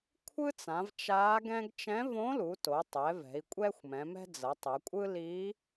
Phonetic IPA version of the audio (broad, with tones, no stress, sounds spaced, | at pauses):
kʷʰ ɯ˥ t͡s ã˩˧ v t͡ʃ a˧˥ ɡ ɛ̃˥ ɡ t͡ʃ ɛ̃˧˥ v õ˧˥ l u˩˧ t o˩˧ tˤ ɛ˩˧ v ɛ̤˩˧ i̯ kʷʼ ɛ˥ xʷ m ɛ̃˩˧ m ɛ̤˥ d͡z ʌ˩˧ tˤ ɛ˩˧ kʷʼ ɯ˥ l i˧˥